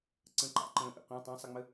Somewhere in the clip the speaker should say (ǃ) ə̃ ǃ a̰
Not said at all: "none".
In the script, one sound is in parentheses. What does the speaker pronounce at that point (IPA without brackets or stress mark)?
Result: ǀ